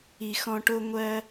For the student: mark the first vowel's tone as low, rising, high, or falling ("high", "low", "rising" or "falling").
low